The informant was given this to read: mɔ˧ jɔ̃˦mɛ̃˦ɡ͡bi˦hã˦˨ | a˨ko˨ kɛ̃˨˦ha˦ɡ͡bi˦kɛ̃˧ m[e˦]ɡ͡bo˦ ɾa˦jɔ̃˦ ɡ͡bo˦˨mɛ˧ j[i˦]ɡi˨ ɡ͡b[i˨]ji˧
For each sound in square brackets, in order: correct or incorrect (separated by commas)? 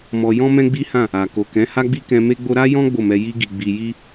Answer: correct, incorrect, correct